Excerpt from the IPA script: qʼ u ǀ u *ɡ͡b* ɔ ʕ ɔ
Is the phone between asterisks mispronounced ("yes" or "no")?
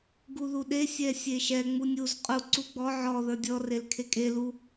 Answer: no